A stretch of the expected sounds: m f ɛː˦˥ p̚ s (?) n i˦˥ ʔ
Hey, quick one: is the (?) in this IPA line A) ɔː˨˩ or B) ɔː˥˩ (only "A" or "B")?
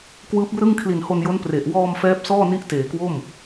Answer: B